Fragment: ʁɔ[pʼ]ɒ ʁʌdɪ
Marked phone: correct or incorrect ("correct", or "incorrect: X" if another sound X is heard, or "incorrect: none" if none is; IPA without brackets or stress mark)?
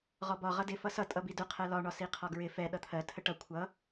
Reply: incorrect: b